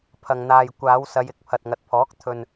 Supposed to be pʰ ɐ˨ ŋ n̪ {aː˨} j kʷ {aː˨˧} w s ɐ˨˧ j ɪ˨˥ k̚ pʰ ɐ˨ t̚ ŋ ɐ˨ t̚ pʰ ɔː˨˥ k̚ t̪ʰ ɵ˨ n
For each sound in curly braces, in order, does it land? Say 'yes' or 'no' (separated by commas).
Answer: yes, yes